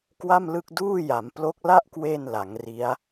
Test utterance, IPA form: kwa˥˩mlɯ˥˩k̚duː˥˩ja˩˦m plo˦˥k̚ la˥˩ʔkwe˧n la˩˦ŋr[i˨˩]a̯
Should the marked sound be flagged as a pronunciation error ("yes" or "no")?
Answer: yes